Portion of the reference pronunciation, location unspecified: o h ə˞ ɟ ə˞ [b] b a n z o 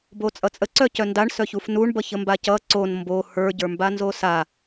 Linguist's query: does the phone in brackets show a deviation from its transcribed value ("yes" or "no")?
yes